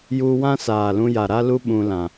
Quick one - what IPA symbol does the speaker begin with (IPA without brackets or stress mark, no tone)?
j